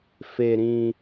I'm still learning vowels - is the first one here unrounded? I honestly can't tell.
yes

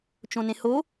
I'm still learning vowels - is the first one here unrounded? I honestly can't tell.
no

